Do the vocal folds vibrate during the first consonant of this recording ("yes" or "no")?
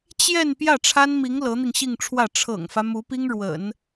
no